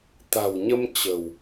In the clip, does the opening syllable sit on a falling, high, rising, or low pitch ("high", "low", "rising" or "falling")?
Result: low